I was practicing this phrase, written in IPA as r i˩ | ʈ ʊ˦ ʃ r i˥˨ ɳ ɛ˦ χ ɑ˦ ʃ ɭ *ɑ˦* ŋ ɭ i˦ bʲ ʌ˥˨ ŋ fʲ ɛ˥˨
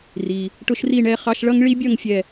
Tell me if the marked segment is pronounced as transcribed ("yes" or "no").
no